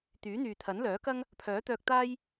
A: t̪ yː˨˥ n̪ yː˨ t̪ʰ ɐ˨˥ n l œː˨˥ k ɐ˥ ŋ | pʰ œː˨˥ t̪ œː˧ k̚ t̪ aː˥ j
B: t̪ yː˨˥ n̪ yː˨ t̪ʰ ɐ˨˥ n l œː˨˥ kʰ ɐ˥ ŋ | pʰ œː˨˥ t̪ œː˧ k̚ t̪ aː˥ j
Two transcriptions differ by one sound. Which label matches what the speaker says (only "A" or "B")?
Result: A